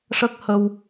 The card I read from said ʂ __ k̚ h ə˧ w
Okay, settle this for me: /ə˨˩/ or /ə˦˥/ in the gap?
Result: ə˦˥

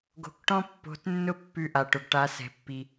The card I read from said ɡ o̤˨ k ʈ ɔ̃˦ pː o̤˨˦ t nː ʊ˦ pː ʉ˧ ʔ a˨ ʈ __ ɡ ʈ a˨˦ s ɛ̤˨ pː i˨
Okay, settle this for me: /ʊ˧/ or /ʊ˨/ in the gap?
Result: ʊ˨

